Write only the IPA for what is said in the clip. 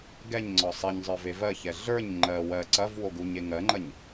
ɡɛɲŋ͡ǀɒ sˤiɲzˤə˞v evɜçɛ ɮə˞ɲ ŋ͡ǃɜ wɜ ǀɐv woɡuɲe ŋɜŋ͡ǃɐɲ

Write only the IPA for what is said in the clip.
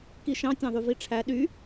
kiʃɑ̃ tʲæ̃ðˤyviʈ͡ʂʰæ ɗy

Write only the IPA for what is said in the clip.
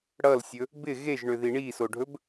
ɽʌlsʲɵ | bɪ ɣeʒɳʏði ɳisoɖʱɵb

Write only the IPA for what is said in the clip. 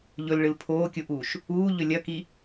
ʎɵlɭɨl pʰoːkʲuʔuːʃ | uːʎɵ lʲɐki

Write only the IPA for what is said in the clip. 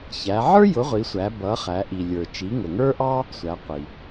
çæ˩˧ ʕə˞˥jʊ˩˥ʁʷi˩˧sʷæ˩˧ bʌ˩˥χæ˩˧ ʔi˩lʲə˞˩ t͡ʃi˩˥ŋə˩ŋə˞˥ʔɑ˥ | sʷæ˩˧qʷi˩

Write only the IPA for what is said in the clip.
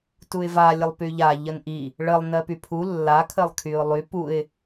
tuɪ̯va lʲəlˠpyʎa ʎənʔi | ɭəlˠ nɜpypʰu lːa kʰəlˠkʰyʊ̯lˠy puɪ̯

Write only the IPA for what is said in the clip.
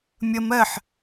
mʲəm ɜħ

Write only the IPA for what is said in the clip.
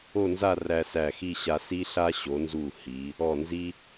o˥˧nza˥˧ ræ˧sæ˧˩xi˥˧ɕa˧ si˥ɬa˥ ɕo˩˧nzu˧˩ hi˩˧ | ɔ˧˩nzi˥

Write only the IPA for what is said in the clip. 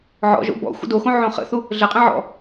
ʕɔ̰ʒo̰ bɔ̰ xʷə̰doxõ ʕõχə̰θu | ɮəqʼə̃ ʕɔ̰

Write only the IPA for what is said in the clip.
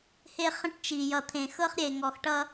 he˦χə̃˦ʈt͡ʃi˨ jʌ˨t̪ʰẽ˨ xɤ˦χɾʲe˨ ŋɔ˨xʈʌ˦

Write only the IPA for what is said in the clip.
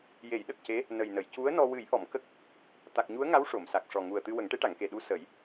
je˨˩˦jɗə˨˩k̚ce˧˥ | nə˨˩jnə˨˩˨j cu˧˥ə̯nɔ˧ wɨ˨˩˦jʔɔ˨˩˨m kə˦˥k̚ | t̪a˨˩k̚ɲu˧˥ə̯ŋa˧˥w ʂo˨˩˨msa˨˩k̚ʂɔ˨˩ ŋu˨˩ə̯t̪ɨ˧ wə˨˩˦ŋʈe˧˥ʈa˨˩˨ŋke˨˩ ɗu˧sə˨˩˦j

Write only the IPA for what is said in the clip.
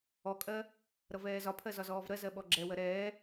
ɔkʼɜ | ɾʌvɛːzɒpʰɜ zɒzɔːvɾɜzɜ ɓɔɡ͡ǁɛwɜ ɾɛː

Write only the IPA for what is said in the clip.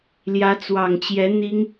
ljä˧˥t͡swɑ˨˩ŋt͡ɕjɛ˧˥ n̪i˥ŋ

